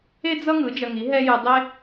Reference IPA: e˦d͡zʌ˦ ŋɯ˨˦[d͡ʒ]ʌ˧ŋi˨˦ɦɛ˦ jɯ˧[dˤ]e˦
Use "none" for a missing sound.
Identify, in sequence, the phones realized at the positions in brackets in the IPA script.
d͡ʒ, dˤ

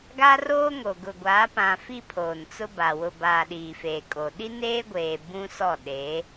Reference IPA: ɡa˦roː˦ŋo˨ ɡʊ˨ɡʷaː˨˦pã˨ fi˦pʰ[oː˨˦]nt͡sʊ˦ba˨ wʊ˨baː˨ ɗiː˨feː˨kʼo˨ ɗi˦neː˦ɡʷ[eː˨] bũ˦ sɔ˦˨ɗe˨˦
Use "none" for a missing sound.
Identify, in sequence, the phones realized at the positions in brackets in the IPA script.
oː˨, eː˨

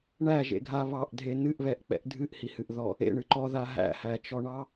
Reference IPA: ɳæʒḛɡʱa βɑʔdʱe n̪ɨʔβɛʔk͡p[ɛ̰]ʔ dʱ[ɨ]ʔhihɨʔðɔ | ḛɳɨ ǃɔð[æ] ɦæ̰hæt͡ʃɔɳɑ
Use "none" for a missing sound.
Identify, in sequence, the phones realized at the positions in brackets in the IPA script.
ɛ̰, ɨ, a

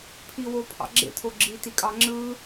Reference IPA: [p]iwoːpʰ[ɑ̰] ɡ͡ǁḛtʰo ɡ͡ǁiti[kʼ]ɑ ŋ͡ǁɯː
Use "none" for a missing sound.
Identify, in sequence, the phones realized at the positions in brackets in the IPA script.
pʰ, ɑ̰, kʼ

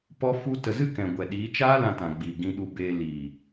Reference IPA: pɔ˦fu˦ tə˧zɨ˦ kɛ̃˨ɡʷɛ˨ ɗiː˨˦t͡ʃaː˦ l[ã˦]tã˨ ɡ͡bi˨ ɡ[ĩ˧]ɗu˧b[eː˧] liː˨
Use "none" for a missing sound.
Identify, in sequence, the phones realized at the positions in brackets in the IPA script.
ã˧, ĩ˧, eː˧

